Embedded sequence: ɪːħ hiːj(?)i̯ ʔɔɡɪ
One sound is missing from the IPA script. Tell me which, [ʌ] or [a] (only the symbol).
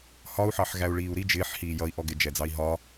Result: ʌ